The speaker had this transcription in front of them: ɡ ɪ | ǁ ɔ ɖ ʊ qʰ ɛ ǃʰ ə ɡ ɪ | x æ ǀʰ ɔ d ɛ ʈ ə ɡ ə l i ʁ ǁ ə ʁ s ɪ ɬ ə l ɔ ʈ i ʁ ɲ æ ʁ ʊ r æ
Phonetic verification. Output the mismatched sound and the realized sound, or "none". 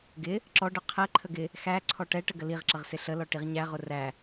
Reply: d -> ʈ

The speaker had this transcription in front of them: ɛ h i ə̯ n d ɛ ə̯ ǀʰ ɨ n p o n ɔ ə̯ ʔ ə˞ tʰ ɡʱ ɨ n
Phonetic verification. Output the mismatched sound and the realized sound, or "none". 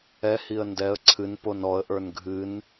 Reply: tʰ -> n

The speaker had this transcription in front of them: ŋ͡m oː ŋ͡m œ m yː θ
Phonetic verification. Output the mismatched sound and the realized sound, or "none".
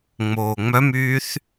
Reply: none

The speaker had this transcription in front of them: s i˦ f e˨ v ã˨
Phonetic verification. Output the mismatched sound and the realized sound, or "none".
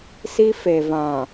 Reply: none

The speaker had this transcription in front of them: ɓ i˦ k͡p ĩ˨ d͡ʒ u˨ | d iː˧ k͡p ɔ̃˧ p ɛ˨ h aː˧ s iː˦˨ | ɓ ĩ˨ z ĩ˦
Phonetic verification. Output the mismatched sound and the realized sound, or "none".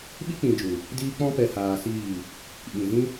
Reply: none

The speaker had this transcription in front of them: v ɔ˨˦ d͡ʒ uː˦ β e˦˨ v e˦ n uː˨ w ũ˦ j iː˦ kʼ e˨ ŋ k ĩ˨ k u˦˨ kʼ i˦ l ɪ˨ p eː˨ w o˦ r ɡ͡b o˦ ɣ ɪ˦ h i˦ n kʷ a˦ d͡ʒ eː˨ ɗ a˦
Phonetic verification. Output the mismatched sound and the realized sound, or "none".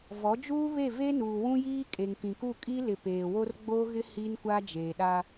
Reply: none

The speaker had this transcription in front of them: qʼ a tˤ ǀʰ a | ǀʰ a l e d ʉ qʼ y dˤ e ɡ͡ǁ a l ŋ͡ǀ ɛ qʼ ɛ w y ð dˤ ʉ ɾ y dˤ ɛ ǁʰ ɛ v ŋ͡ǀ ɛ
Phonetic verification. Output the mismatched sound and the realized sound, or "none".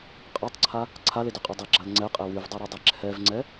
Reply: ð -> v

